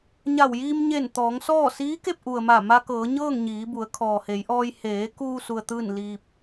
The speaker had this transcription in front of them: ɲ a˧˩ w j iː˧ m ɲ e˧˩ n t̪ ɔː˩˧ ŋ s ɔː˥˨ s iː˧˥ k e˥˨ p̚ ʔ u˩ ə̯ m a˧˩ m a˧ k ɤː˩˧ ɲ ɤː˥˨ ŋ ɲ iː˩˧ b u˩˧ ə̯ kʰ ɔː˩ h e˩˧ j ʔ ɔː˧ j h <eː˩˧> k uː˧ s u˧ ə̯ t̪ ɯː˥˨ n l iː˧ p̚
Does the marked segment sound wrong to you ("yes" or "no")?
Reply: no